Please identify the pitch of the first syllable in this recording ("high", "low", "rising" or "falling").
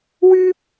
high